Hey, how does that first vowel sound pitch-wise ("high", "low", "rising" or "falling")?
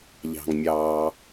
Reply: low